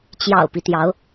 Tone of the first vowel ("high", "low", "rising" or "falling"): low